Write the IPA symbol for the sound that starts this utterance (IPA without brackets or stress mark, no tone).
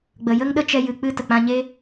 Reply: ɡ͡b